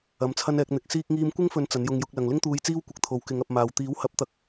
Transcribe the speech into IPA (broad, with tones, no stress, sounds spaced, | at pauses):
ɐ˨˧ m t͡sʰ ɐ˥ n ɛː˨˥ k̚ n̪ ɪ˨˥ k̚ s iː˥ k̚ ŋ iː˧ m kʷ ɪ˥ ŋ f ɵ˨˧ n t͡s ɐ˨˥ n j ʊ˧ ŋ j ʊ˨˥ k̚ l ɐ˨ ŋ l ɪ˥ ŋ t̪ uː˧ j t͡s iː˥ w kʷ ɪ˧ k̚ t̪ʰ o˨˥ w k ɪ˨˥ ŋ ɐ˧ p̚ m aː˨ w t̪ iː˨˥ w h ɐ˨˥ p̚ t̪ ɐ˧ k̚